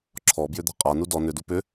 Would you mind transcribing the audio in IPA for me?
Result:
ǁʰɔbjʏd̪a̤ qʼanu dɔ nʏ dupʏ

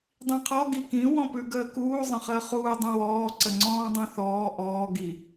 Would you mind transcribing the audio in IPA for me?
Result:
dˤĩqʰɔ ɡikĩ wɔ̃pʉɡəːkuː zˤə̃χəːχuː dˤũwɔː ǀəŋ͡ǀɔ̃ːdˤũθɔː ʔɔː ɡi

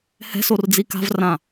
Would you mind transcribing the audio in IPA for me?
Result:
hɛ̤sord͡zi ka̤vrã

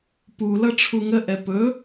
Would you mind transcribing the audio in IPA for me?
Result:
pulʌ ʈ͡ʂʰuŋəʔɛ pɵ

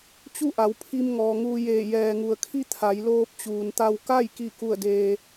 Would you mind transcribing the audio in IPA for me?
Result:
t͡ɕu˥˨ʔa˩˧w pʰi˧m ŋɔː˩ŋuː˧jeː˧˩ jɛː˩ŋu˩ə̯kʰi˥˨ t̪ʰa˩˧jloː˧p̚t͡ɕuː˩nt̪a˧w ka˥˨j ki˥˨ku˥˨ə̯deː˧

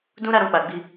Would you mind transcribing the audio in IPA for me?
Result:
dũ˦ ɾa˦ɾɔ̃˧ k͡pa˨ ɡ͡bi˧

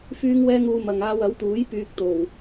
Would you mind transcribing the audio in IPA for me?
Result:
fyː˥ŋwɛː˥ŋuː˧ mɐ˨ŋaː˧wɐ˨˥wt̪uː˨˥j pyː˧k̚t̪o˨˩w

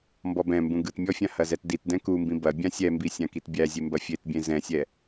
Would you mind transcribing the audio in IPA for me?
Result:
mbɔbɛ̃mbũ ɡɯt mʲɔfʲã hɐzɛtditdɛ̃ kumbĩ bɐbʲã sʲɛmbi sʲãkitbʲæzʲe mbɐfʲetbʲẽ zɛ̃sʲɛ

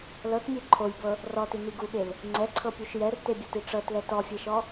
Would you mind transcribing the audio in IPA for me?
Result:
lɤtmʲe ǃʰojbɤ | rɔtini ɡuɠel | ŋ͡ǀɛǀʰɤpʲuʃ jɛrtebʲɛti ʈ͡ʂɤtlɛ tɔfʲeʃɔ

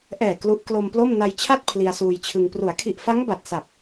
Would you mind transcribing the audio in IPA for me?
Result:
ʔɛː˨˩ klu˦˥ʔ klo˧mplo˥˩m na˧jt͡ɕʰa˥˩t̚ pʰli˧a̯suː˧jt͡ɕʰɯ˧ŋ pru˩˦a̯kʰi˨˩ʔfa˦˥ŋ ba˨˩t̚sa˨˩p̚

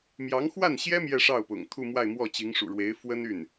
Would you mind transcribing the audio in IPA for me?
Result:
mjɑ˧˥ŋxwa˥˩nɕjɛ˥ mjɛ˥˧ʂɑ˥˩ʊ̯pʊ̰˨˩ŋ t̪ʰu˥˧mwa˥˧ɪ̯mwɔ˥˩t͡ɕi˧˥ŋ ʂṵ˨˩ɻwe˧˥ɪ̯ fwə˥ny˥˩n

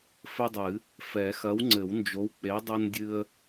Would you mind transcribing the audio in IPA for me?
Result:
fɘ˦dˤɨ˨˩˦ | fɛ˨˩˦ xɐ˨˥wŋ͡ǀɘ˨˩˦wnd͡ʒo˨˥w k͡pe˨˥dˤɨ˦ndʲɨ˦ə̯

